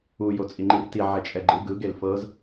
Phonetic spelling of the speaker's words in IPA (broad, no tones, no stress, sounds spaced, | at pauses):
u j o t͡sʼ i ŋ͡ǃ i r t i ʕ ɛ t͡ʃʼ ɛ ɡ͡ǃ ɯ ɡ ɯ ɡ e l f ɤ z